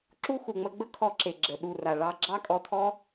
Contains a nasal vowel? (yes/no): no